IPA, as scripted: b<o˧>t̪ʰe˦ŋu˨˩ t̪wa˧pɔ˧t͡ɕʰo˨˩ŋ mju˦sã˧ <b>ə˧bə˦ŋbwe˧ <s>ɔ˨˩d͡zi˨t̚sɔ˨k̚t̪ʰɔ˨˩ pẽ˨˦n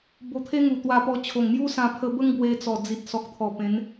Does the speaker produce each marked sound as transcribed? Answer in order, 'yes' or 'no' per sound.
yes, no, no

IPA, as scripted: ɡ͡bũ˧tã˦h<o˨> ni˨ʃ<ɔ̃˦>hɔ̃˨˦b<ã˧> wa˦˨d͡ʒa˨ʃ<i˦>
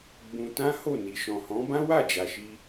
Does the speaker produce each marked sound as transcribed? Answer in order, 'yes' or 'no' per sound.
no, no, no, no

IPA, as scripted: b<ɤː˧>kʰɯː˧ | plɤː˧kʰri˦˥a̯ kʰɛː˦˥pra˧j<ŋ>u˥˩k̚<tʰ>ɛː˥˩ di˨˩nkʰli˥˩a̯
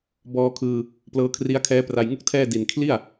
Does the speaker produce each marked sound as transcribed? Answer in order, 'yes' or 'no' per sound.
no, yes, yes

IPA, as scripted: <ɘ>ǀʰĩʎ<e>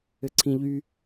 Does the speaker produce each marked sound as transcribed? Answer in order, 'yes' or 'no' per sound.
yes, no

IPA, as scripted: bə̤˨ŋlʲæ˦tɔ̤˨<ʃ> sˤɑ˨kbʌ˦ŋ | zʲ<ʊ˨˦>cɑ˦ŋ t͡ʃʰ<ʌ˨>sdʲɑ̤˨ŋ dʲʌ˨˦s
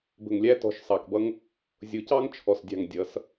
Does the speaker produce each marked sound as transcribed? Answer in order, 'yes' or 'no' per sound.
yes, yes, no

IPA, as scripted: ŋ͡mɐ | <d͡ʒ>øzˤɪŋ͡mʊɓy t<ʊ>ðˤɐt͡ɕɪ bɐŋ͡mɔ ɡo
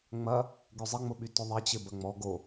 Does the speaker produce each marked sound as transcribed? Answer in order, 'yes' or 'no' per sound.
no, yes

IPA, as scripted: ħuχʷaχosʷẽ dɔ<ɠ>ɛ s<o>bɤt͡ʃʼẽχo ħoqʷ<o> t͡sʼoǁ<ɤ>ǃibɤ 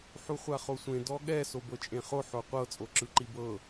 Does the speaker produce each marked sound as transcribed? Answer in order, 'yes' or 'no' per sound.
yes, yes, no, no

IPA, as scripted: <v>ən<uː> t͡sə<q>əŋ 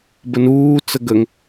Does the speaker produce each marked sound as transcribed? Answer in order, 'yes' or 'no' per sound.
no, yes, no

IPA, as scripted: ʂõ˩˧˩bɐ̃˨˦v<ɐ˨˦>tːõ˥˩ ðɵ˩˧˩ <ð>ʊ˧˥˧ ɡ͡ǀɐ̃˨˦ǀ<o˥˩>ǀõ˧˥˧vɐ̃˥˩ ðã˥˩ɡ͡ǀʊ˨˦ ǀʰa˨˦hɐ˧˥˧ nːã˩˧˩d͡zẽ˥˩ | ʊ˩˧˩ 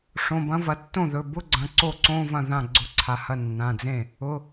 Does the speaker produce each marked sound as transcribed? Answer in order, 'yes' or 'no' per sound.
no, no, yes

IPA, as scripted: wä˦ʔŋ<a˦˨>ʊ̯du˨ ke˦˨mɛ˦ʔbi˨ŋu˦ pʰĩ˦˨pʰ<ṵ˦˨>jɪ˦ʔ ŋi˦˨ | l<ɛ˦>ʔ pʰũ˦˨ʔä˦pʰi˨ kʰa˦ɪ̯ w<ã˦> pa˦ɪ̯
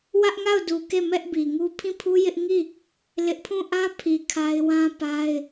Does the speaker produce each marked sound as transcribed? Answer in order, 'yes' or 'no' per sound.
yes, no, no, yes

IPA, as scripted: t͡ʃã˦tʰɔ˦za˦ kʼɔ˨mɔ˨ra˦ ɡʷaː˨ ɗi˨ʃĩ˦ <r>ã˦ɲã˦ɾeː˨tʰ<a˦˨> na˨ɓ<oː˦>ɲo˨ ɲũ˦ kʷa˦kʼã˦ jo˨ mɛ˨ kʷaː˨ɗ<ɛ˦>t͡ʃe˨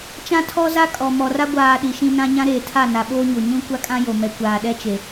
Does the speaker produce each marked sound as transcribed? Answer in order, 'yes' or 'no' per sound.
no, yes, yes, yes

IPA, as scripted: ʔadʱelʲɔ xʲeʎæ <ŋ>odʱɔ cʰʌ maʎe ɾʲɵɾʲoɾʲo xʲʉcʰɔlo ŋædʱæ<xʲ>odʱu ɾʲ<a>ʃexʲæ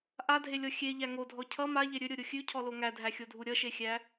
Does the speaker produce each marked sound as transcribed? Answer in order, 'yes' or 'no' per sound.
yes, yes, no

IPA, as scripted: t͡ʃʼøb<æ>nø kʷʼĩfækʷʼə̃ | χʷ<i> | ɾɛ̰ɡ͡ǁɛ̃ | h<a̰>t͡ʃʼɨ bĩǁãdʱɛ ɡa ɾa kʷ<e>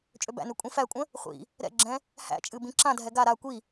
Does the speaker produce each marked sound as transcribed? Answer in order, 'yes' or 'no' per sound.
no, no, no, no

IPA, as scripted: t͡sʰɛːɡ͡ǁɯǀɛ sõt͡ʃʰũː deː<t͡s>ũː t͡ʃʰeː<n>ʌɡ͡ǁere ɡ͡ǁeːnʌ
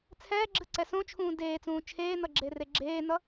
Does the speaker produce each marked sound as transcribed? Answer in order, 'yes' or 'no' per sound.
yes, yes

